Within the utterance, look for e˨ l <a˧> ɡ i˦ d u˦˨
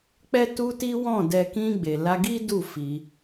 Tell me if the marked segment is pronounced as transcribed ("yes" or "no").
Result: yes